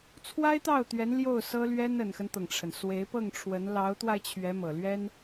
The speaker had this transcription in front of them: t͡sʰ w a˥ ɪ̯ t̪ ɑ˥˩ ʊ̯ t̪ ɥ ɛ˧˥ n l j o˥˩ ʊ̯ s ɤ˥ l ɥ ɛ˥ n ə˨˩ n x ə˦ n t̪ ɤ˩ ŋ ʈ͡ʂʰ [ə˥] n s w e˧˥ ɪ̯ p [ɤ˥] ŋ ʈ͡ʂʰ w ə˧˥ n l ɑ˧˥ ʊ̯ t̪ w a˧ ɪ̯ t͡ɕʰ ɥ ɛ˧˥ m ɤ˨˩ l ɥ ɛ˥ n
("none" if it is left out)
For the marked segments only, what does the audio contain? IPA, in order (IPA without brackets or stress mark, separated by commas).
ə˩, ɤ˥˩